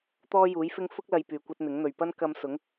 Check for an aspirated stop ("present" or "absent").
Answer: absent